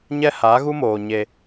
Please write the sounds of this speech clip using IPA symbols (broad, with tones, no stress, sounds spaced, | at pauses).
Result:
ɲ ɛ˦ h aː˨˦ ɣ u˦ m oː˨ ɲ e˧